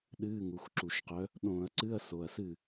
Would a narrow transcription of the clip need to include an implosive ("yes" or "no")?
yes